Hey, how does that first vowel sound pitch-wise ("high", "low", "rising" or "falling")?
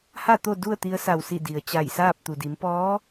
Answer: falling